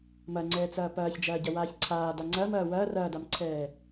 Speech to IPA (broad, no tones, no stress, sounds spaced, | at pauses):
m ɐ ŋ͡ǀ ɛː t͡s ɐː p ɐː ç d͡ʒ ɐː ɟ ɐ w aː ç ǀʰ aː d a ŋ͡ǀ ɐː m ɐː w ɐː r ɐː d a m ǀʰ ɛː